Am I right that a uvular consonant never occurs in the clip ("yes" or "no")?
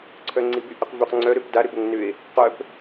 no